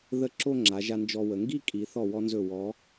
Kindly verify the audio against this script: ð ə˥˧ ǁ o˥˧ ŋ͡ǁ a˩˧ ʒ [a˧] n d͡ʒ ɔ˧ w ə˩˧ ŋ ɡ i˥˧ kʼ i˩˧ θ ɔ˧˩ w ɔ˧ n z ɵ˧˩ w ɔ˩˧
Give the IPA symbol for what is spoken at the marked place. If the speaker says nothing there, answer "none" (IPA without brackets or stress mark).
a˧